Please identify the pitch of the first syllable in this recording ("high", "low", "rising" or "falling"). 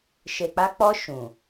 low